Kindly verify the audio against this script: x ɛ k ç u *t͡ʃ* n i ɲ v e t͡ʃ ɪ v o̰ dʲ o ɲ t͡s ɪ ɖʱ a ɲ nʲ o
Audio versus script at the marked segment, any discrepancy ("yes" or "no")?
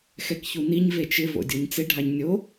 yes